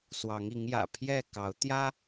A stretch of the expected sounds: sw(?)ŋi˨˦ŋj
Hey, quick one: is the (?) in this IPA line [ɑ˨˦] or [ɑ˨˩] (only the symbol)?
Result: ɑ˨˦